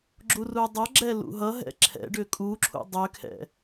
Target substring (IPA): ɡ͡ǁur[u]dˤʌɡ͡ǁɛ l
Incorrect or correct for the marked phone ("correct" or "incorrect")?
correct